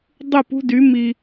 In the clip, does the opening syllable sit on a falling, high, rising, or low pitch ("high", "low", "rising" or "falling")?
falling